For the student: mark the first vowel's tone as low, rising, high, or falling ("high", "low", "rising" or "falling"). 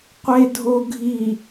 low